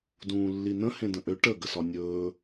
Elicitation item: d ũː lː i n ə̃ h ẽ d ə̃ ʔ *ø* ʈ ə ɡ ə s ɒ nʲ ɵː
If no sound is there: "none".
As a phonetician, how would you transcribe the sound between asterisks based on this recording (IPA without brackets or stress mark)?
ø